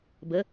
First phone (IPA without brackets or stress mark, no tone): b